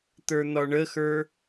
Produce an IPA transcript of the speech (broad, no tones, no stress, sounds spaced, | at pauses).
t̪ ə˞ n̪ ɒ ɳ ə x ə˞